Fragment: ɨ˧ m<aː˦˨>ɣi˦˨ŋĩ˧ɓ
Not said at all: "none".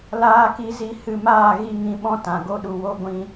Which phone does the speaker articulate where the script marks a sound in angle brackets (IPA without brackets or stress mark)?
aː˦˨